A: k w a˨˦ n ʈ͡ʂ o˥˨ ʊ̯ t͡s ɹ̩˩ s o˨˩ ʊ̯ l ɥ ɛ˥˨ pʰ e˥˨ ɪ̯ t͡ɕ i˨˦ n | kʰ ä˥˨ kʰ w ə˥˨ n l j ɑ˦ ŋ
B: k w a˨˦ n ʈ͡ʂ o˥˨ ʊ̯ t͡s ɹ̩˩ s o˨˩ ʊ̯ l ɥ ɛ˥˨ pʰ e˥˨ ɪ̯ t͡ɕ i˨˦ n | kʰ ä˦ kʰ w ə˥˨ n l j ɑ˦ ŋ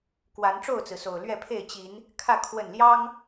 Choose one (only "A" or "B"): A